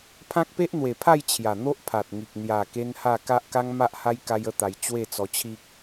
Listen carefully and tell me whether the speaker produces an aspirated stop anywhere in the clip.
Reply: yes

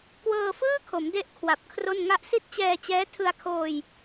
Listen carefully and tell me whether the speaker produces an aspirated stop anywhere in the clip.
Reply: yes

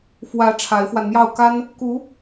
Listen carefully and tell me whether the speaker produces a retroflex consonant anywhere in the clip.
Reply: yes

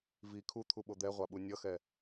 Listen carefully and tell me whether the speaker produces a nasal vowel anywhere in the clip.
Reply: no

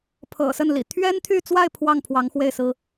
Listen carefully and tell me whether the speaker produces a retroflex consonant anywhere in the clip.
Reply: no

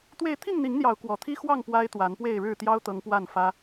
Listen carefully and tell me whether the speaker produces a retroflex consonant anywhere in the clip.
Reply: yes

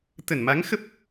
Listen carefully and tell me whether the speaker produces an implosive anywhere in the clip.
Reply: no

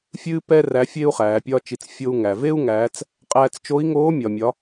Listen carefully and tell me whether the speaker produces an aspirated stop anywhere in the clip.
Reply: no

